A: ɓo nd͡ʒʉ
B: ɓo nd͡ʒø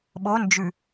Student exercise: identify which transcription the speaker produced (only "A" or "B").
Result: A